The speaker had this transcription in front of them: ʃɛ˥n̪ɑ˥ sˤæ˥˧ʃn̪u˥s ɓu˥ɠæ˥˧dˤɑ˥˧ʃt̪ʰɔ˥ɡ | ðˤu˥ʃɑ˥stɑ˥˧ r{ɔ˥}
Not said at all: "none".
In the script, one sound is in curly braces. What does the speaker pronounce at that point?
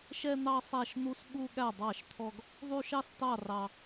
ɑ˥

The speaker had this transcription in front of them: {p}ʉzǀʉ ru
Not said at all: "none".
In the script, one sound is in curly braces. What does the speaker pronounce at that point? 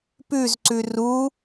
p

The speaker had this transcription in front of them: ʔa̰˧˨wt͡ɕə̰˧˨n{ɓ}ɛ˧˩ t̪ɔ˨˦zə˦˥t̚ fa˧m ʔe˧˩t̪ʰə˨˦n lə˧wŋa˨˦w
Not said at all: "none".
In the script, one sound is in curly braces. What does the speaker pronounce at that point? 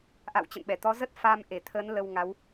ɓ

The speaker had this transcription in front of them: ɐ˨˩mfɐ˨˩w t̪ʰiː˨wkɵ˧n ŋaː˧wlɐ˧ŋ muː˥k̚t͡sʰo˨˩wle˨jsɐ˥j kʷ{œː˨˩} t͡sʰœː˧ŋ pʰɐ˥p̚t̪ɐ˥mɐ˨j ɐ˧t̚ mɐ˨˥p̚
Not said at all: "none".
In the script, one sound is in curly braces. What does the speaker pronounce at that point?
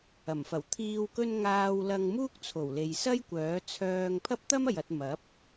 œː˨˥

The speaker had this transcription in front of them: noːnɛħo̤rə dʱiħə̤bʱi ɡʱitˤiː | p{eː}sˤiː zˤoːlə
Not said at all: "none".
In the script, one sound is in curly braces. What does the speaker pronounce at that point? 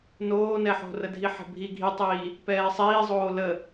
ɛː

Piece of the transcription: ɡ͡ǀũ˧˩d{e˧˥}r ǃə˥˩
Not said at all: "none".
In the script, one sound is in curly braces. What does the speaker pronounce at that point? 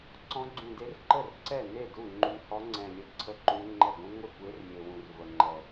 e˧˥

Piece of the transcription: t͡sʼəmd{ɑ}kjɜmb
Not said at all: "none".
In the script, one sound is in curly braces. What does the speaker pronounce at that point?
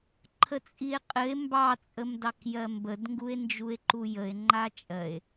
ɑ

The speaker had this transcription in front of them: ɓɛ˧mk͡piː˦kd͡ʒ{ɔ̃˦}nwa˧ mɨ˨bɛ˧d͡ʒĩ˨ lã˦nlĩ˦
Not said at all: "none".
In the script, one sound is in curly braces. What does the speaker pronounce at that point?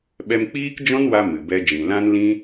ɔ̃˦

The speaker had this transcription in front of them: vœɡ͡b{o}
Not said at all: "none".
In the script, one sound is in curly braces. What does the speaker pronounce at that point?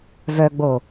o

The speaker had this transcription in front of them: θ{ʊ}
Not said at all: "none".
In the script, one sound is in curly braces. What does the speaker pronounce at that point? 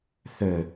ɵ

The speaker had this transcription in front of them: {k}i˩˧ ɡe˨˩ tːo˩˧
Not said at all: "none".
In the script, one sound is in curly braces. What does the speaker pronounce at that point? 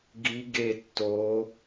ɡ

